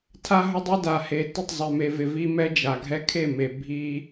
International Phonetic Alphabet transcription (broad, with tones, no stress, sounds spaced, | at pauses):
tʰ a˦ ɦ ʊ˦ dˤ e˦ d a˨ h e˨ t ɪ˦˨ tˤ zˤ ɛ˨ m e˨ v ɪ˨ v i˦ m ɛ˦ d͡ʒ a˨ ɡʱ ɛ˦ kʰ e˦˨ m e˨ bʱ i˦